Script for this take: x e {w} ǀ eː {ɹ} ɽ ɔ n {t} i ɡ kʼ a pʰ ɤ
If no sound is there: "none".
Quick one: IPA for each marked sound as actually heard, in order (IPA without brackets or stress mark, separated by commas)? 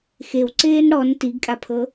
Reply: w, n, t